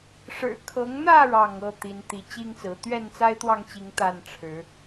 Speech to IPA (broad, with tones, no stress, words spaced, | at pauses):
ʂɻ̩˨˩ kʰɤ˨˦ŋn̪ä˥˨ ɻɑ˥˨ŋ ɤ˥˨ t̪i˨˦n t̪i˨˦t͡ɕi˦ŋt͡sɹ̩˨˦ t̪ɥɛ˥˨nt͡sa˦ɪ̯t̪wɑ˥˨ŋt͡ɕi˨˦ŋ t̪a˥˨nʈ͡ʂʰɻ̩˨˦